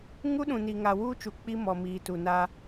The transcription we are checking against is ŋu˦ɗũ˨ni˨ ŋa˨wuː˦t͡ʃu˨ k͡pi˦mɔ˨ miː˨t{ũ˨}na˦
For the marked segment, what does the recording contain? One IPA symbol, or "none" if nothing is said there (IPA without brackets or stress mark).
u˨